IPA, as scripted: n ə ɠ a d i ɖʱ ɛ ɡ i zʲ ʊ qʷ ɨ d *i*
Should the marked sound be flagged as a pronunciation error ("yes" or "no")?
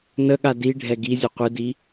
no